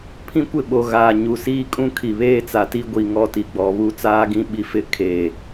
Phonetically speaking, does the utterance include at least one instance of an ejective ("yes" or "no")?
yes